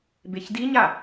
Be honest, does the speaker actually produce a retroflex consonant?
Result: no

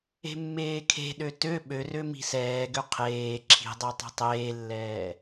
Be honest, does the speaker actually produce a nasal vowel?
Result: no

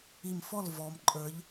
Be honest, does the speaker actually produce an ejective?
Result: yes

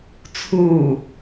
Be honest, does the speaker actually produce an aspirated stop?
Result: yes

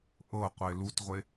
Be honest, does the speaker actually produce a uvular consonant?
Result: yes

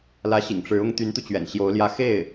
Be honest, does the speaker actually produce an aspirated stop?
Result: no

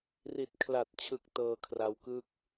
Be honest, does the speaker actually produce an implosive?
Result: no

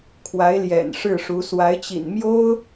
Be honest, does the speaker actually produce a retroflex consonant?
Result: yes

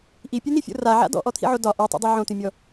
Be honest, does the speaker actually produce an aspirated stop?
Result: yes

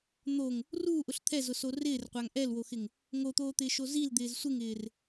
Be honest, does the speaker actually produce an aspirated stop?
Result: yes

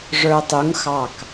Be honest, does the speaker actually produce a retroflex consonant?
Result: yes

